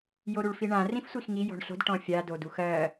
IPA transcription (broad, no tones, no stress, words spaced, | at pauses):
joɾuɭfiɳã rĩfsʷixŋi jɔ̤ɳɬo̤d ʈɔ̃fʲa doduxɜ